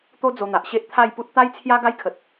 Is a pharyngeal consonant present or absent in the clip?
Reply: absent